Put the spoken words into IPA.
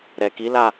ɾ ɛ˨ k i˨˦ l a˦˨

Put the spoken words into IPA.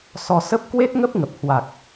s ɔ˧ s ə˦˥ p̚ k w e˦˥ t̚ ŋ ə˦˥ p̚ ŋ ə˨˩ p̚ h w a˨˩ k̚

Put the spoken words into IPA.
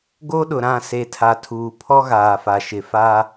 ɡ o˦ ɗ ʊ˨ ɾ ã˦˨ s e˨ tʰ a˨ tʰ uː˨ pʰ ɔ˦ ɣ aː˨ f a˨ ʃ ɪ˨ f a˦

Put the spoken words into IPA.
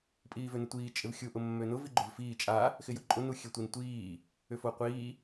pʼ iː v ø n ɪ tʷ iː t͡ʃʼ ɪ v xʲ u ʔ ʊ mː ø n ʊ v i ɡ͡ǃ ʊ v f iː t͡ʃʼ a | x ɪ j ʊ ǃʼ ʊ n u xʲ ø tʷ i n tʷ iː | ʏ f o qʷ iː

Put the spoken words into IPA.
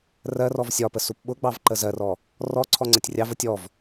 r ɜ r ɔ v sʲ ɒ p ə s u p ɓ ʊ ɡ͡b ɑ v ǃ ə z ɜ r ɔ | r ɔ ǀʰ ɔ ŋ͡ǀ ə tʲ rʲ ɑ v ə tʲ ɔ v

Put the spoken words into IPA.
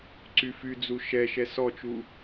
ǀ y f y d͡z u ʃ ɛ ʃ ɛ s ɔ t͡ʃ u

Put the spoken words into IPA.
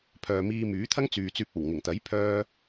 pʰ œː˨ m iː˧ m yː˨˥ t̪ʰ ɐ˥ ŋ t͡s yː˨ t͡s yː˧ p̚ o˨˩ w ŋ ɪ˨˩ ŋ t̪ ɐ˨˥ j pʰ œː˥

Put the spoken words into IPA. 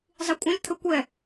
zˤ i kʷʼ ɐ̃ lʲ t̪ʰ ə kʷ ɛ

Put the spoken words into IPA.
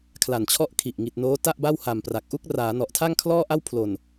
kʰ l a˨˩ n t͡ɕʰ ɔ˥˩ ʔ kʰ i˨˩ ʔ ŋ i˨˩ t̚ n oː˦˥ t a˥˩ ʔ b a˥˩ w h a˨˩ m p r a˨˩ k̚ ʔ u˥˩ k̚ r aː˩˦ n ɔ˨˩ ʔ tʰ a˥˩ ŋ kʰ l ɔː˥˩ ʔ a˥˩ w pʰ l o˨˩ n

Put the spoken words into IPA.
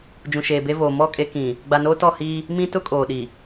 d͡ʒ ũ˨ ʃ eː˨ b e˦ v oː˨ m ɔ˦˨ kʼ e˦ k ĩ˨ | ɡ͡b a˨ n oː˦ t ɔ˦˨ h iː˦ | m ĩ˦ t ʊ˦ kʼ oː˨ ɗ i˨

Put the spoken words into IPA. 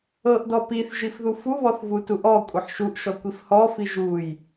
ɤ ʔ d ɔ p i θ ʒ i f ð u f u β ɔ θ v u t u ʔ ɔ kʷʼ ɤ ħ ʃ u ʔ ʃ ɔ kʷ i f h ɔ f i ʒ u j

